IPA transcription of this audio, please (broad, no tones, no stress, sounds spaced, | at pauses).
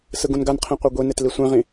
s ɯ ɡ ũ n ɡ a n qʰ ĩ qʷ e ɡʷ i n e t l i sʷ ẽ ʁ ĩ